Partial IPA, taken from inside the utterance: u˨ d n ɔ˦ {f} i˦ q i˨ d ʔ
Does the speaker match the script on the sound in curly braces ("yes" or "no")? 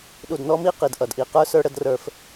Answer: no